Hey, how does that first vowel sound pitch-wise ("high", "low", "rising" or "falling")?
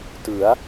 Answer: rising